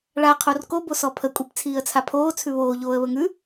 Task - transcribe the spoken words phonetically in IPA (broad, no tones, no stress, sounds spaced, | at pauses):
ɭ a qʰ o r k o b o s ɔ pʰ ə kʷʼ i p t͡sʰ iː ə̯ t͡sʰ a pʰ oː t͡sʰ ʉ β oː ʎ oː ə̯ β ə ŋ ʉ